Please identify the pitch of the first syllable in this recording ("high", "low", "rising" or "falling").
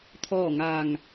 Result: falling